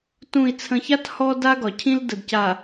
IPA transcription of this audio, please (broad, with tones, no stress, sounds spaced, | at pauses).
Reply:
t ũ˨ i̯ t͡sʰ ə̃˨ ç a˦ t h ɔ˦ d a˦ ɡ ɒ˨ cʰ ĩ˦ l d ə˨ d c a˨